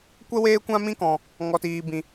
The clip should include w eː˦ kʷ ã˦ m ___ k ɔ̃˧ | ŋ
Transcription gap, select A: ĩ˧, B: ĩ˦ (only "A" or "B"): B